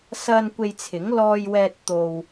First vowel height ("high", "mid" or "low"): low